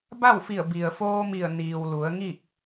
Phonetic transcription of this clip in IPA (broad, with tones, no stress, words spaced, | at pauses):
ba˥˨wfi˧˩ə̯ bi˩ə̯foː˧mi˧˩ə̯ niː˩wlu˩˧ə̯ŋi˥˨k̚